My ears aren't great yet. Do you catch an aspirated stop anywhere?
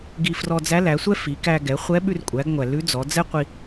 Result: no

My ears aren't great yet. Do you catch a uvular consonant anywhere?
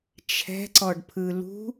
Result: no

